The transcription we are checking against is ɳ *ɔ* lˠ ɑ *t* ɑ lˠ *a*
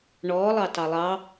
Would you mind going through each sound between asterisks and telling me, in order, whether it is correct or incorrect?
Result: correct, correct, incorrect: ɑ

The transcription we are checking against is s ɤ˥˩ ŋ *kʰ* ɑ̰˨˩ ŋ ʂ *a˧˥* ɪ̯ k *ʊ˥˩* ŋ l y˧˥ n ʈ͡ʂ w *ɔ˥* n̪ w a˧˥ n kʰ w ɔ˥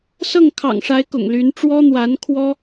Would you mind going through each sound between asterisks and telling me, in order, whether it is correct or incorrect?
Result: correct, correct, incorrect: ʊ̰˨˩, correct

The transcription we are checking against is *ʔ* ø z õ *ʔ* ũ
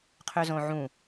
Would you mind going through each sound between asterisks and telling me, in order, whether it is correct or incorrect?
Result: incorrect: qʰ, incorrect: ʕ

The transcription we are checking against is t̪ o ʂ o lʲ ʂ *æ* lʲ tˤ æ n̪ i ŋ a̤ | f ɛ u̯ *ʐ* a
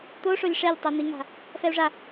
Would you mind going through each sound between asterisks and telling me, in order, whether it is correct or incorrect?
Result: incorrect: ɛ, correct

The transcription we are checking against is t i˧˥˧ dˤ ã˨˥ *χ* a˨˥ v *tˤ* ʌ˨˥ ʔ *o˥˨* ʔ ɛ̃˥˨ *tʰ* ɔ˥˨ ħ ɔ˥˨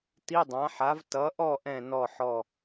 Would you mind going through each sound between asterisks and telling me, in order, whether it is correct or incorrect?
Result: incorrect: ħ, incorrect: t, incorrect: ɔ˥˨, incorrect: n

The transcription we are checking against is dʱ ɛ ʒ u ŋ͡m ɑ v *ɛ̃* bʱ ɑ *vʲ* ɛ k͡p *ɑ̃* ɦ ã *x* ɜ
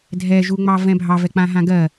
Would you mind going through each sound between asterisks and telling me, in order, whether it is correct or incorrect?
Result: correct, incorrect: v, incorrect: ã, incorrect: ɡ

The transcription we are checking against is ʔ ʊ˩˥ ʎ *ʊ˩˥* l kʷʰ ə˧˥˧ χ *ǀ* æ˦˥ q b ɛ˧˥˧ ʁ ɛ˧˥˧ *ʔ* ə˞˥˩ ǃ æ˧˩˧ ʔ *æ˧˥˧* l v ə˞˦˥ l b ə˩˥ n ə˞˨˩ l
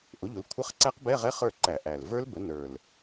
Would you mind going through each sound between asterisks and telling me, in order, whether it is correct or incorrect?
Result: correct, correct, incorrect: χ, incorrect: æ˨˩

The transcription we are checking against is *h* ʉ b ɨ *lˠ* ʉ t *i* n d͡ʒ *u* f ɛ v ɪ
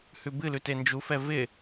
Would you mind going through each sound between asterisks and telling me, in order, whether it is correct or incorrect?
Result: correct, incorrect: l, incorrect: e, correct

